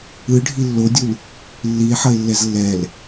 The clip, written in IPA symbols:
ɯɖʱi lːodʲul | lːie̯ħʌe̯lːɛz lːɛl

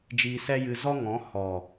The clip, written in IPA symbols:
d͡ʒiː˧sɛ˦jɨ˧ zɔ˦ŋɔ̃˨˦ hɔ˨

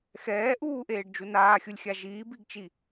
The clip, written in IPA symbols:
xɛː ʔuːʔeːɖd͡ʒu naːxʲulʲxʲa ʒiːbiɡt͡ʃi

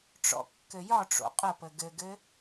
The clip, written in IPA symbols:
ʈ͡ʂɔ̰kːɘjɒʈ͡ʂo̰ qʼəpə ɡɘɡɘ

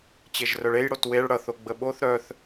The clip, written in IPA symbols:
t͡ɕeʒrœɭej ɽotweɭ ɽʌθoɡ͡bə ɓoθ ɾœθ

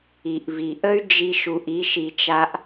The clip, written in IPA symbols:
i˩ʔvi˩ʔə˥y̯ d͡ʒi˥ʃu˧ʔ i˥ʃi˧t͡ʃa˥ʔ

